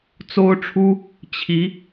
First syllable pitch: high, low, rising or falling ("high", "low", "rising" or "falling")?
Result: high